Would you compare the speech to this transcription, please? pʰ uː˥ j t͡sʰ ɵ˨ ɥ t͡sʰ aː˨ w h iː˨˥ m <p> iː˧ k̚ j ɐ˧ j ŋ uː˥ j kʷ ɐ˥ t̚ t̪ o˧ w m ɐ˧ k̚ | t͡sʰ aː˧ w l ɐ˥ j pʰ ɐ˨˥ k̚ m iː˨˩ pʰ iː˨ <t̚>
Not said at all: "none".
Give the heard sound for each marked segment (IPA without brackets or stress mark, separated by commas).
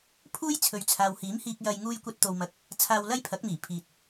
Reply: h, t̚